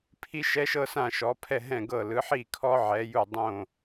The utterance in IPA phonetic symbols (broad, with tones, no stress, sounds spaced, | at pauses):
pʰ i˦˥ ʃ ɛ˦˥ ʃ ɤ˦˥ s ã˥˩ ʃ ɔ˩˥ pʰ ɛ˥˩ ɦ ɛ̃˥˩ ɡ ɤ˥˩ l ɯ˩˥ ħ i˥˩ kʰ ɔ˦˥ ʕ ɛ˩˥ j u˥˩ dˤ õ˥˩